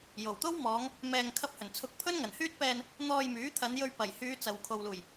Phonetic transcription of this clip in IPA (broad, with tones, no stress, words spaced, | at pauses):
jo˨˩wt̪o˥wmɔː˨˧ŋ | mɛː˧ŋ kʰɐ˧p̚hɵ˨˩n t͡sʰʊ˨˥k̚ pʰɵ˥nŋɐ˨˩nhyː˥t̚pɛː˧n | n̪ɔː˧jmyː˨˥t̪ʰɐ˨˧n jɵ˧ɥ pɐ˨˩jhyː˨˧ t͡sɐ˨w kʰo˨wluː˨˩j